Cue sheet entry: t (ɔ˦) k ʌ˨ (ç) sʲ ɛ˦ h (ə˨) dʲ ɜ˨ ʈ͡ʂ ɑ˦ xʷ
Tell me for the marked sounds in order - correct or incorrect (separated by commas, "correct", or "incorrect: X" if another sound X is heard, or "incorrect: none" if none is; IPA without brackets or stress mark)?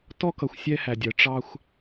correct, incorrect: xʷ, incorrect: æ˨